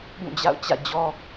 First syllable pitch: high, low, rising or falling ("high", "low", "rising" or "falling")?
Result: falling